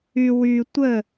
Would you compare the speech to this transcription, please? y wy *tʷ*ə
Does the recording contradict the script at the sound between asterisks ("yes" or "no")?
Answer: no